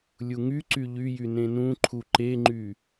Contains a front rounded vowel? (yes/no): yes